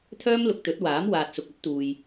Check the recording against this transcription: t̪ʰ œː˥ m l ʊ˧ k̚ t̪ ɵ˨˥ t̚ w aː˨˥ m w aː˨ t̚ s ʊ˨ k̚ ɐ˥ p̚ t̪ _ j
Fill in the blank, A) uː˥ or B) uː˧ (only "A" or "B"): B